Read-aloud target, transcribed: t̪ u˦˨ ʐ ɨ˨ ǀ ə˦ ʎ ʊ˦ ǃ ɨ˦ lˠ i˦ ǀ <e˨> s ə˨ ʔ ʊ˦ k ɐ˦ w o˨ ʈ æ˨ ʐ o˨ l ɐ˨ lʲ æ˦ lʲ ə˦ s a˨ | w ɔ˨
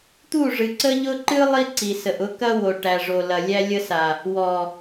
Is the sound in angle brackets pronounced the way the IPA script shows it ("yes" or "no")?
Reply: no